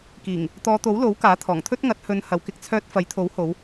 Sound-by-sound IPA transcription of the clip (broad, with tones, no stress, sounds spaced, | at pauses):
k iː˨˩ ŋ | t̪ ɔː˨˧ t̪ o˨˥ w l o˨˥ w k aː˨˥ t̪ʰ ɔː˨˩ ŋ t̪ʰ ɵ˥ t̚ ŋ ɐ˨˥ t̚ h ɵ˨˧ n h ɐ˨ w k ɪ˧ k̚ t͡sʰ œː˧ t̚ f ɐ˨˥ j t̪ʰ o˨˥ w h o˨˧ w